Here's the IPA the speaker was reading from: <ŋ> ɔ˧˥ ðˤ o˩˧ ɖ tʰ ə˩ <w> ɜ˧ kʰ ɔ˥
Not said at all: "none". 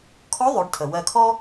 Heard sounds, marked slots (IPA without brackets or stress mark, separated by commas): kʰ, w